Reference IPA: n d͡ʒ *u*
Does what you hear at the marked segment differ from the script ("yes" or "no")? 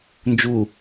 no